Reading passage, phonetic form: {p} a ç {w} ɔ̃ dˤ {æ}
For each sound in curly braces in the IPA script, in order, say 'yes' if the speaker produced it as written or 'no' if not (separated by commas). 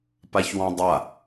yes, yes, no